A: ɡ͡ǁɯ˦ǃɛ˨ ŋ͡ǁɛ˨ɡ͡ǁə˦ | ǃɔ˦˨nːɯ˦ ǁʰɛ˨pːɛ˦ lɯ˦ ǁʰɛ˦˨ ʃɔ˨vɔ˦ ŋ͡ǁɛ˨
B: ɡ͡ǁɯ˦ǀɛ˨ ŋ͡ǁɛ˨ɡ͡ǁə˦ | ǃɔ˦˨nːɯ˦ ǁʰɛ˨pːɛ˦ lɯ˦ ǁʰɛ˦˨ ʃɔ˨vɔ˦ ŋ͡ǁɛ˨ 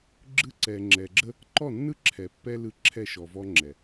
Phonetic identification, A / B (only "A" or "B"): B